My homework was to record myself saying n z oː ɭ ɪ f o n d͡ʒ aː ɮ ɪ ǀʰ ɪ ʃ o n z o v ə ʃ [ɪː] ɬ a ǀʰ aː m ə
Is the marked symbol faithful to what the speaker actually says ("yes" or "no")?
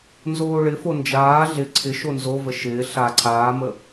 yes